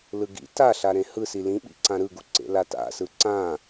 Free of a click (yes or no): no